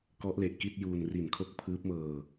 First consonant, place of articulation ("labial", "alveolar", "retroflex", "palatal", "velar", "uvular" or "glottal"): velar